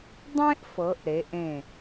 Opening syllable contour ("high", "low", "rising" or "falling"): high